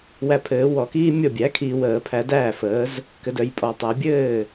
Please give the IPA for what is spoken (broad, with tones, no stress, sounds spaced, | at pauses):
w æ˨ pʰ ɘː˨˩˦ w ɔ˨˩˦ k iː˥ mʲ ɔ˥˩ bʲ æ˩˥ kʰ iː˨ w əː˨˩˦ pʰ æ˨˩˦ d æː˥˩ f əː˩˥ z | k ɘ˨ d œ˨ j pʼ ɔ˨˩˦ tˤ æ˨˩˦ bʲ ɘː˥˩